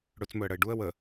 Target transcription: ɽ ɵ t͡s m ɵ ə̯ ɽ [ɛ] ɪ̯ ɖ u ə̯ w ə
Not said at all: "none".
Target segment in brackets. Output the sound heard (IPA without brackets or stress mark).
ə